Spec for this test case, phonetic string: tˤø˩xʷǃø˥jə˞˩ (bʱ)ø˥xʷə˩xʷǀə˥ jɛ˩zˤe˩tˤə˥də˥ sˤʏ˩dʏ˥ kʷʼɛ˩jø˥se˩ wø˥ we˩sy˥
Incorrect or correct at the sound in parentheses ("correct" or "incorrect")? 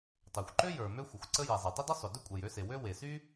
incorrect